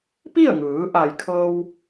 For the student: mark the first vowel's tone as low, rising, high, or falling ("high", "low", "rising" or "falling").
falling